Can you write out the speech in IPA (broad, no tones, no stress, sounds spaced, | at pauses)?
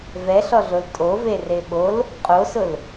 v ɛ ɬ ɔ ɮ o l tʼ o v e r e ɓ o l | qʼ o s ʊ l